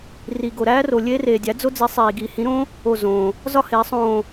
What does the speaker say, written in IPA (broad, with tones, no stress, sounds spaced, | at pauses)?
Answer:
r i˩ ɡ o˩ ɾ æː˥ r o˩ lʲ eː˥ r eː˩ dʲ æ˩˥ d͡z o˥ d͡z i˩˥ sˤ iː˩ ɡ iː˩ h ĩ˩˥ ɾ õ˥ | o˧˩ z õː˩ | z ɒ˥ h eː˩˥ sˤ õː˧˩